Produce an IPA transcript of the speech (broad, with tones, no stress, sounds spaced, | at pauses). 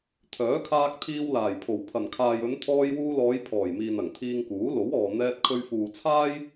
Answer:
t̪ʰ œː˨˥ kʰ aː˧ k̚ t̪ʰ iː˧ w l aː˨˩ j pʰ o˨˩ w pʰ ɐ˨˩ n kʰ aː˨ j ɵ˨˧ n t̪ʰ ɔː˧ j w uː˧ l ɔː˨˧ j pʰ ɔː˨˩ j m iː˨ n ɐ˨˩ ŋ t̪ʰ iː˧ ŋ k uː˨˥ l o˨˥ w ɔː˨ n̪ ɛː˧ t̚ kʰ ɵ˧ ɥ f uː˨ t͡sʰ aː˥ j